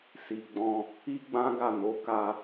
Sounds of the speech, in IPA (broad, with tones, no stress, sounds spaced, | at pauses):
s i˨ ɡ͡b ɔ̃˧ | i˦ ɡ͡b ã˦ ɡ a˦˨ n o˨˦ k a˧